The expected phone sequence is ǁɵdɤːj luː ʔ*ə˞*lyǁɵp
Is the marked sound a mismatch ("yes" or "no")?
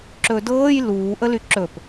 yes